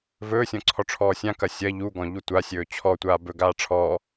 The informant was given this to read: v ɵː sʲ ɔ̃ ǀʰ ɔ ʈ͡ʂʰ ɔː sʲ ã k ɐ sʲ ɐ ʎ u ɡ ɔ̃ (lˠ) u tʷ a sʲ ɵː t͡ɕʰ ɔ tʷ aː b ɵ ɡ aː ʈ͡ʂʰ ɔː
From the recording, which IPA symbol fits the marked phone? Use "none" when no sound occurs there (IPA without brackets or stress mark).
ʎ